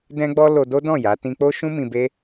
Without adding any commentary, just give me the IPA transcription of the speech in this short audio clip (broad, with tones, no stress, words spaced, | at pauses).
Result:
dɛ̃˦ɡ͡bɔ˦ lo˧ do˦dɔ̃˦˨ ja˨˦ tĩ˧k͡po˦ʃũ˦ mĩ˧be˦